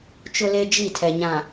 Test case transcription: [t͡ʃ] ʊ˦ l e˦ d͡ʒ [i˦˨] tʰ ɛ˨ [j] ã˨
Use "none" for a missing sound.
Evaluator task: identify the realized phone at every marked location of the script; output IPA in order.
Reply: t͡ʃ, i˦˨, ɲ

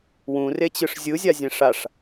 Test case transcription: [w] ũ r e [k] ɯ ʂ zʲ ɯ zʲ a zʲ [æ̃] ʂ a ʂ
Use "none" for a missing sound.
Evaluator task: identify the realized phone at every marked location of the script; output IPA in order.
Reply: w, t͡ɕ, ɛ̃

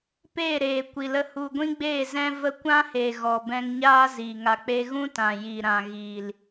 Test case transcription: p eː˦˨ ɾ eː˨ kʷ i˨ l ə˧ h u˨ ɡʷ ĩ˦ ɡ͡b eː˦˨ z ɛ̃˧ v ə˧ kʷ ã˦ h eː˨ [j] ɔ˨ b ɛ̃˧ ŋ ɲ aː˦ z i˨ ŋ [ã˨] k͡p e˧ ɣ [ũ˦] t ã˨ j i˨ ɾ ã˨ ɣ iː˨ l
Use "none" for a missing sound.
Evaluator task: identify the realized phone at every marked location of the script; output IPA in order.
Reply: ɣ, a˨, ũ˦

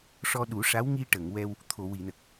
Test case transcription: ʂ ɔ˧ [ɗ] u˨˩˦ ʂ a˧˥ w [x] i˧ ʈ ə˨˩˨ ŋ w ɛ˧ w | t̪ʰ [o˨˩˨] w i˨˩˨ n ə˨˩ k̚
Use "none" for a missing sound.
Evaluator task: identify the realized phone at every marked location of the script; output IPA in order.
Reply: ɗ, ŋ, o˨˩˨

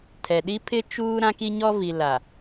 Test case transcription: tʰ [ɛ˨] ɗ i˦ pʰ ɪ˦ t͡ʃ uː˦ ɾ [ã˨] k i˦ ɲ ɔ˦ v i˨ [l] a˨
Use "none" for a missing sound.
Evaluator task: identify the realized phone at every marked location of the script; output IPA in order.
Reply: ɛ˨, ã˦, l

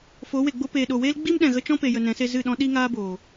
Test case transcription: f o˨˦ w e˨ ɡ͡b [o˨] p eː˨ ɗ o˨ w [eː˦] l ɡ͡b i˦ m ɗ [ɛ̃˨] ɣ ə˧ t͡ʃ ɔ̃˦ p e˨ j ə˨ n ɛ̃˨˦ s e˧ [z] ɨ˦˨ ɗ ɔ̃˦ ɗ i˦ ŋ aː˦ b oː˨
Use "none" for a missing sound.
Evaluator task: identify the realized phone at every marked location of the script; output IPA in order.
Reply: o˦, eː˦, ɛ̃˨, z

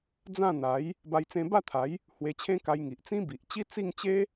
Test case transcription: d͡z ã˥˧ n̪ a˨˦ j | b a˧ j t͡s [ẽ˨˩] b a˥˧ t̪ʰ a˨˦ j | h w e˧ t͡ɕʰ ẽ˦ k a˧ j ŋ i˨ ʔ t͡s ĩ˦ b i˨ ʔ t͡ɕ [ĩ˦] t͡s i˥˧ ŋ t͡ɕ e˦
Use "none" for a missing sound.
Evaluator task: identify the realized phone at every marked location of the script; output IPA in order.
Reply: ẽ˧, i˦

